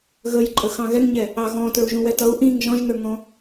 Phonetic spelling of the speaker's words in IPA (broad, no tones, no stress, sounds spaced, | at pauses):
ɣ ə j ǃʼ ə x ɑ̃ ɣ ɛ ŋ ɲ ɛ | ɑ ɣ ɔ̃ t ə˞ u̯ ʒ ũ w ɛ t ʌ u̯ ʔ ĩ ŋ ʒ ɔ̃ ʒ n ə˞ ŋ ɔ̃